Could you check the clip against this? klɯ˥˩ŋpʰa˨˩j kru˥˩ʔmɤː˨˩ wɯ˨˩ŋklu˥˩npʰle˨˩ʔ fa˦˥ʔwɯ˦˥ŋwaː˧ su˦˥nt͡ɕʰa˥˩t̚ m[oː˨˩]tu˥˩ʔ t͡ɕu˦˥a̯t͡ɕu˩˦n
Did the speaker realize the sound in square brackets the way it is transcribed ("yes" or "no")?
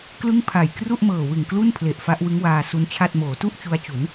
no